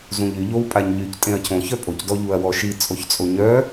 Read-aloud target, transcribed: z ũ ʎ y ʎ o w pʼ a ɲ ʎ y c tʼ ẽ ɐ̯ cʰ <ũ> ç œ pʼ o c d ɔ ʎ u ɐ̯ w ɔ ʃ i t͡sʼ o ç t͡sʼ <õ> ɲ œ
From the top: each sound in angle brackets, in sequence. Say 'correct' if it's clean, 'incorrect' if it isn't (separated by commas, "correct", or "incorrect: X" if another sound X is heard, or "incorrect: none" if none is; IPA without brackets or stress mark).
incorrect: õ, incorrect: o